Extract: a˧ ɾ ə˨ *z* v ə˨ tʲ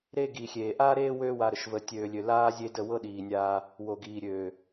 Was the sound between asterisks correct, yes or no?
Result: no